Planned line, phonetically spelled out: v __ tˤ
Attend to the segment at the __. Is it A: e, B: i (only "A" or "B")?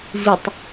B